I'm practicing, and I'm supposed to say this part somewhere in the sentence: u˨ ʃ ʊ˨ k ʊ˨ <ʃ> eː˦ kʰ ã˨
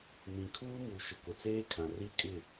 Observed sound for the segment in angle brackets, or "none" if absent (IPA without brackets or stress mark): t͡s